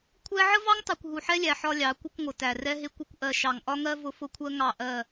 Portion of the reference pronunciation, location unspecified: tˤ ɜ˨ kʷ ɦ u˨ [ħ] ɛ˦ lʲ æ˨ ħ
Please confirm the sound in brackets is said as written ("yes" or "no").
yes